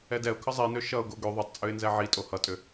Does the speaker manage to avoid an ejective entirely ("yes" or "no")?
no